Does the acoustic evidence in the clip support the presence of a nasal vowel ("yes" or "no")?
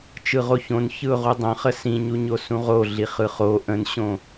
yes